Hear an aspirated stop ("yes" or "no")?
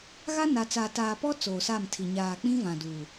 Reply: yes